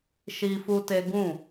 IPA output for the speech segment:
ʃ i˦ f u˦ t e˦ ɡ ũ˦˨

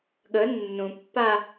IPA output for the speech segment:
ɠ ə nː ũ pː a

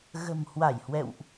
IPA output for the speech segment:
ɣ ə̤˨˩ m h w a˧˩ j h w ɛ̰˧˨ w ʔ

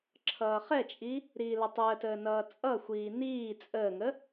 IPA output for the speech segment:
ǁʰ ʌː χ ɛ t͡ʃʼ i | ɾ iː l ə tˤ əː t əː n ʌː t͡sʼ ʌ xʷ iː n iː t͡sʼ əː ŋ ə

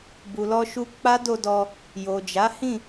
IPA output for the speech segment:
b u˨ l ɔ˧ ʃ u˧ k͡p a˦ d o˧ d ɔ˧ | j o˨ d͡ʒ a˨˦ h ĩ˦˨

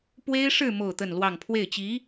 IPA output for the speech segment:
p w e˥ ɪ̯ ʂ ɻ̩˥˧ m o˥˧ ʊ̯ t̪ ə˥˧ n l w ɑ˥˧ ŋ pʰ w e˥˩ ɪ̯ t͡ɕ i˧˥

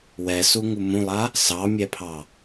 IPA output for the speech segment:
w ɛ s u ŋ u m ũ lˠ a | s ɑ mʲ ɛ pʰ ɑ

